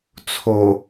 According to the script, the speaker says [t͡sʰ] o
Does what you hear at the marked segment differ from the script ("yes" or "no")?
no